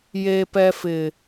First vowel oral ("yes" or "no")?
yes